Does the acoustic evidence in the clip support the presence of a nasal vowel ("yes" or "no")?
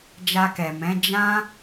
yes